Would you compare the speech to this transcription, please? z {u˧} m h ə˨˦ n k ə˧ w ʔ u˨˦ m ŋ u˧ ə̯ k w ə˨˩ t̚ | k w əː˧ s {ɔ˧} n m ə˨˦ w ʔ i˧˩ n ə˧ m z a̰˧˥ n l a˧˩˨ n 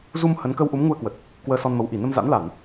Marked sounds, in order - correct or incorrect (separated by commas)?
correct, correct